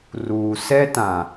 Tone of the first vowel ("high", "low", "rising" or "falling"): low